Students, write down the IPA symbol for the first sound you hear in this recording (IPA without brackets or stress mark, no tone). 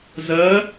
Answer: z